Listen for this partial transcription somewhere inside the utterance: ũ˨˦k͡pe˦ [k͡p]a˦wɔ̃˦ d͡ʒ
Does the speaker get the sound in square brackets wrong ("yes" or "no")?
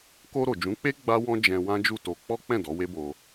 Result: yes